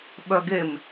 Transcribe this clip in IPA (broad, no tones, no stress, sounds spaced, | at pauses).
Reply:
ɓ œ ɡ e m